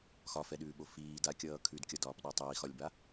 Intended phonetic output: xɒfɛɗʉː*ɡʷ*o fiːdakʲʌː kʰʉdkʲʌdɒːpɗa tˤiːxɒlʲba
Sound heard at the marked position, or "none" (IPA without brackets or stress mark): ɓ